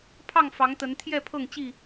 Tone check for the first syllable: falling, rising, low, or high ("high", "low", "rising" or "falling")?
falling